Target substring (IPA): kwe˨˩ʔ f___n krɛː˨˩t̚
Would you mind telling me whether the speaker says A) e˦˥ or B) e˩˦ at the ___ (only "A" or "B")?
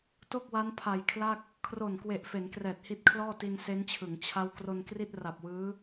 B